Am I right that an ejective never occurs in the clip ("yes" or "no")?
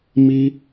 yes